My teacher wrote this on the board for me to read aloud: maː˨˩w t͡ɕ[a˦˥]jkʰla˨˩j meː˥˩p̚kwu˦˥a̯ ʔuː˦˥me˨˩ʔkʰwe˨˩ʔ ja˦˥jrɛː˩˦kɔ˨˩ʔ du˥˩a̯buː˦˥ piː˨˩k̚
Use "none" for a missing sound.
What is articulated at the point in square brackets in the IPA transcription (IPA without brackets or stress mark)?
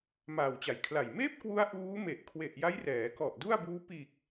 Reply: a˩˦